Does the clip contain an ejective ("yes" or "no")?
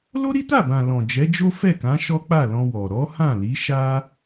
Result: no